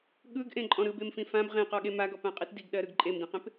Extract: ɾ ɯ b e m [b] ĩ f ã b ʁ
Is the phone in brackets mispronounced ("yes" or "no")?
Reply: yes